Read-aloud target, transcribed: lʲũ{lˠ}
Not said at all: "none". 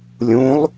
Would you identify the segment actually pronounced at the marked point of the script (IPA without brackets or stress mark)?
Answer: lˠ